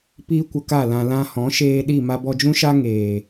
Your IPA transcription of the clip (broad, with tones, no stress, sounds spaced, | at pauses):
p iː˦ kʷ ə˧ k a˦˨ l ã˧ l ã˧ h ɔ̃˨˦ ʃ eː˧ ɗ i˦˨ m a˧ b ɔ˧ d͡ʒ ũ˦ ʃ a˦ ŋ eː˨